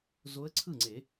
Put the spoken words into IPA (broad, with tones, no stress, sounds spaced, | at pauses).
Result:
z o˧˥ ə̯ ǀʰ ɯ˥˩ ŋ͡ǀ e˨˩˦